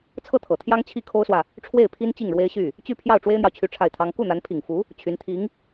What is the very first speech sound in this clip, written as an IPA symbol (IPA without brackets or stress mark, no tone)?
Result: t͡sʰ